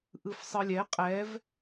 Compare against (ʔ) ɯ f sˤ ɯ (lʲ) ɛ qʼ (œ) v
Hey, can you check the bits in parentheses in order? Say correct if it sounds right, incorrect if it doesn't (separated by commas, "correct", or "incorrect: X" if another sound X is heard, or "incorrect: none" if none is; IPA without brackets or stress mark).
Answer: correct, correct, incorrect: ɛ